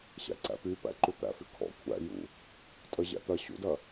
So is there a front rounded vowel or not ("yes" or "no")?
yes